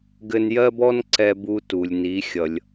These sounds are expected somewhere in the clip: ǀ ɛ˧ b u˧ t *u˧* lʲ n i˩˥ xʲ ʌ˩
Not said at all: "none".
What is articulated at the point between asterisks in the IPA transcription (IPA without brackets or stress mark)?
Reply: u˩